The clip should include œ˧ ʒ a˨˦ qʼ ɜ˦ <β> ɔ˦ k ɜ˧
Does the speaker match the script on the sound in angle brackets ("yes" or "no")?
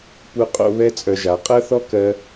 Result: no